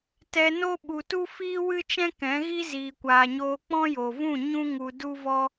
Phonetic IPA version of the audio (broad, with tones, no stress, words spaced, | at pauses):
tɛ˧no˦ ɓu˨tu˦fiː˦ wɨ˦t͡ʃɛ̃˦ kɛ̃˨˦ɣi˦ ziː˨kʷaː˨ɲoː˧ k͡pɔ̃˦jo˨vũ˦˨ ɲũ˦ŋu˧ du˦vɔ˦